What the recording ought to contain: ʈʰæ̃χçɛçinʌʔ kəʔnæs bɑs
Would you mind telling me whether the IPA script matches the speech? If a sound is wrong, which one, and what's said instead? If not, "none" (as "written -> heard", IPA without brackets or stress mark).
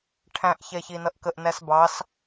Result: χ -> ʔ